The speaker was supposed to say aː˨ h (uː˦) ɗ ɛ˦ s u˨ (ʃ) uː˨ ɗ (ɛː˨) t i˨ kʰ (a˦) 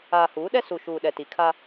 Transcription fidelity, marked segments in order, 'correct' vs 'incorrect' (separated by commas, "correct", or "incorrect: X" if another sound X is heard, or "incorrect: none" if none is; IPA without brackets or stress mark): incorrect: uː˨˦, correct, incorrect: ɛ˨, correct